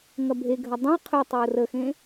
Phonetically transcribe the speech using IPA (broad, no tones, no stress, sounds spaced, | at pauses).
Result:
ŋ ɐ bʱ e ɡʱ ɐ dˤ ə̃ ɪ̯ qʰ ʏ tˤ e ʊ̯ r ə x ẽ